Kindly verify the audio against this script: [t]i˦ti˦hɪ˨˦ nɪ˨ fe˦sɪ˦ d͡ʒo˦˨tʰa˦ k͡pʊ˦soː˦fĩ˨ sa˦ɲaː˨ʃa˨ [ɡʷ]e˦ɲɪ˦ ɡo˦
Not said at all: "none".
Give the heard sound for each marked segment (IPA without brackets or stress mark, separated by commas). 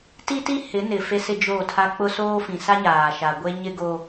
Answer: t, ɡʷ